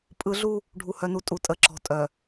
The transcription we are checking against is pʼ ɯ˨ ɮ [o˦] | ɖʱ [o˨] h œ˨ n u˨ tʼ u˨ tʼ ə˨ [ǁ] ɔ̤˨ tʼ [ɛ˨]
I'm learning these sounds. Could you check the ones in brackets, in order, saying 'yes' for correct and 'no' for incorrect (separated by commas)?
no, no, yes, no